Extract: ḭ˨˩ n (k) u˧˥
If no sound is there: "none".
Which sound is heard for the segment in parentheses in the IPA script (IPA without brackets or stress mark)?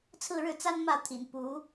p